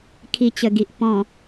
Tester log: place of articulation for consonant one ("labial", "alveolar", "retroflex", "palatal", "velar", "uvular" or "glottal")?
velar